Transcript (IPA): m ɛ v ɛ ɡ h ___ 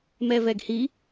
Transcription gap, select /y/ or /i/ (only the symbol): i